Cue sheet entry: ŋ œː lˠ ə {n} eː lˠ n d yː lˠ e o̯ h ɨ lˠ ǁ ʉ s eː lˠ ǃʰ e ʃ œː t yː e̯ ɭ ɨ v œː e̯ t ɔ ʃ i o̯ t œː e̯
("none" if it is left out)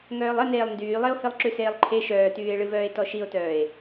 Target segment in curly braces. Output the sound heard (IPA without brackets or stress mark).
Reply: n